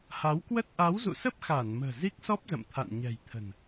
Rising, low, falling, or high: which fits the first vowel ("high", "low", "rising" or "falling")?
rising